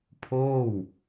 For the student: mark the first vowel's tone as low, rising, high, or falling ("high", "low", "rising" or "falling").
falling